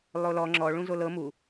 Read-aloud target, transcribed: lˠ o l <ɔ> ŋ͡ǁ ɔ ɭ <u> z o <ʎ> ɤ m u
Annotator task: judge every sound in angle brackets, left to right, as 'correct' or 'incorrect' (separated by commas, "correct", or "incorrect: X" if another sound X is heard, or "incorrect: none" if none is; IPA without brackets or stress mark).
correct, incorrect: ũ, incorrect: l